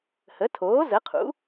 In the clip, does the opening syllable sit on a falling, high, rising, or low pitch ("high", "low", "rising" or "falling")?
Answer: rising